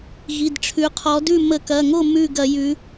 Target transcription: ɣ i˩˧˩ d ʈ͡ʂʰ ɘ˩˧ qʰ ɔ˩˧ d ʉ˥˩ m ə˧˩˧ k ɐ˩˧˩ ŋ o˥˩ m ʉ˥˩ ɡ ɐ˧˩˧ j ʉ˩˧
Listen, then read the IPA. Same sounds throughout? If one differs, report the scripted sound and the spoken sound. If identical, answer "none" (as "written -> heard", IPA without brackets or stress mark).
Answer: ɘ˩˧ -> ʉ˩˧